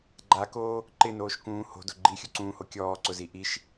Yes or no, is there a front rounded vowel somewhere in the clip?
no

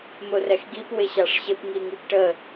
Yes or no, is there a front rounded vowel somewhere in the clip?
no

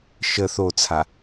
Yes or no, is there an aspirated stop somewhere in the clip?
yes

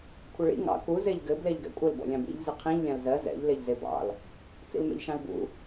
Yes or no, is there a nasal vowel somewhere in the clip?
yes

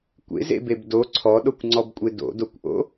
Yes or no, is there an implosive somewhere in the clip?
yes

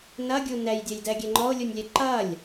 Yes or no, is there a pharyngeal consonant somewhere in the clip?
no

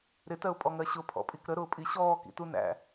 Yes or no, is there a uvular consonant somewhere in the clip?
no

